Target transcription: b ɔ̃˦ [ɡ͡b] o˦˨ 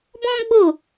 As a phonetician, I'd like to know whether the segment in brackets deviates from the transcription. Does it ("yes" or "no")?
no